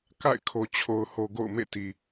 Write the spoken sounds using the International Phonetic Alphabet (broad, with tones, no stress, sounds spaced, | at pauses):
k a̰˦˨ ɪ̯ kʰ o˨ t͡ɕʰ o˨ ʊ̯ h o˨ ɡ o̰˦˨ ʊ̯ m ḛ˦˨ t i˨